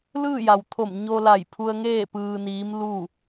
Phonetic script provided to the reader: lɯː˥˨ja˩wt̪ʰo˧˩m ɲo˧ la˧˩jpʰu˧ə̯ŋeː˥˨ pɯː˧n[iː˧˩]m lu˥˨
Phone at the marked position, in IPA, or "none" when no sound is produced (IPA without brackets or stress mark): iː˧˥